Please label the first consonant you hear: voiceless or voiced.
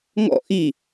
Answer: voiced